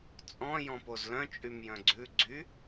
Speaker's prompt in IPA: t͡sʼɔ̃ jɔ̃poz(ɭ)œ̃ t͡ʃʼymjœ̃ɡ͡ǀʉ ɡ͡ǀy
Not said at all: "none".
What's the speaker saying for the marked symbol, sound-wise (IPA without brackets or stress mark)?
l